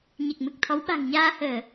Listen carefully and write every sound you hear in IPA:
ɲ e˨˩ k̚ m ɨ˨˩ k̚ t̪ʰ ɔ˨˦ w ɓ a̤˨˩ ŋ ɲ aː˧ h əː˧˩˨

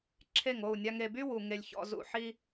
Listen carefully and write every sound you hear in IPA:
ǁʰ e˦˨ ŋ o˦˨ u̯ nʲ a˧ ŋ e˨ b y˦ w u˨ ŋ e˧ lʲ ç ɔ̰˧ z ṵ˨ ħ i˦

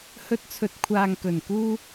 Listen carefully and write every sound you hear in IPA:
h ɵ˧ t̚ t͡sʰ ɵ˨˥ t̚ kʷʰ aː˨ ŋ k ɵ˨˩ n k uː˧

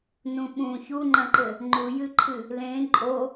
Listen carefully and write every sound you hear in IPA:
n ũ ɓ ũ ç u ŋ͡ǃ ɐ̃ ǃ ɘ | ŋ͡ǃ u j ɨ ǃʰ ɨ | l ẽ ǃʼ o

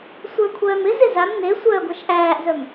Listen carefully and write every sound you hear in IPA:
sʷ ə˞ kʷʰ œː m ɪ z ɪ z a m n e sʷ œː ɡʷ ɛ ʃ ʔ æː ʔ z œ m

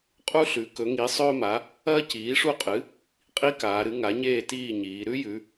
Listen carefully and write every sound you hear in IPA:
qʼ u˥ ɬ ʉ˩˥ k ɵ˩˥ ŋ i˩˥ sˤ ɵː˥ m a˩˥ | ɐː˥ c iː˩˥ ʂ u˥˨ qʼ ɨ˩˥ | qʼ i˥ k aː˩˧ ɾ ɨ˩˥ ŋ a˩˥ ɲ eː˥˨ t iː˥˨ ɲ iː˩˧ ɾ ʉ˥ j ʉ˩˧

